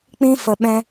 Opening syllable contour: high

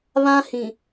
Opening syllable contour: high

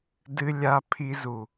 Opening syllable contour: low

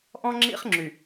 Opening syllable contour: high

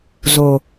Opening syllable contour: low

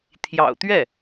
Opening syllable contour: low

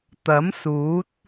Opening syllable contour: rising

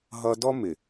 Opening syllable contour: high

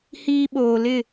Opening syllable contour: high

